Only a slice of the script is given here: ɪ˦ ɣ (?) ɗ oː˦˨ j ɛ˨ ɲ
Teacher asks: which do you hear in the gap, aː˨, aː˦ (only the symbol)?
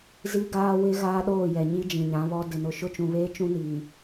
aː˦